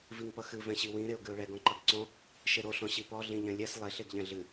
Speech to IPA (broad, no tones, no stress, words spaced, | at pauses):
viŋpʌxɨ vɛ̃ɕiwĩ ɾeʊ̯ɡɨʊ̯ɭɛɡ ɔ̃ǃʌɡǀɔ̃ | ʃeɾo ɬɔ̃ɕipɔ ɮĩʎɛ̃lʲɛs lˠeɬ eɡʎɛ̃ɮɨ